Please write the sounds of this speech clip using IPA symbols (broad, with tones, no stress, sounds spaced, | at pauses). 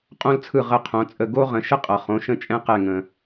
qʼ õ˦ l t͡sʰ ɯ˧˩ ʁ ə˧˩ qʰ õ˩˧ t͡sʼ ə˧˩ ɡ o˦ ʁ ə̃˩˧ ʃ ə˦ qʼ ʌ˩ χ õ˩˧ ʃ ə̃˦ t͡ʃʼ ɛ̃˦ q ɛ˧˩ ŋ ə̃˩